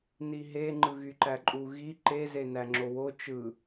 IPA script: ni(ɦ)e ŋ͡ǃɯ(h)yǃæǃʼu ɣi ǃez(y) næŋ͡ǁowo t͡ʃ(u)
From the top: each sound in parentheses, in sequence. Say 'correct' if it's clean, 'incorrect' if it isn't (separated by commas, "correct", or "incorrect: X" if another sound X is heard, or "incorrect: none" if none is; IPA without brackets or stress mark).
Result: correct, incorrect: ɣ, incorrect: e, incorrect: ɯ